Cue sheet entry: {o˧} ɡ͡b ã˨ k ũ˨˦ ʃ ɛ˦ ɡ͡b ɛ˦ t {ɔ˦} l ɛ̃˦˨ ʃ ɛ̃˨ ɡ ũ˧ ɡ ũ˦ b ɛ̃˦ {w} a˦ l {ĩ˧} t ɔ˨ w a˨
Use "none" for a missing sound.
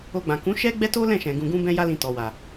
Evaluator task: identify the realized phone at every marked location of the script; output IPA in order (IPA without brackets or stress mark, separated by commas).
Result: o˧, o˦, j, ĩ˧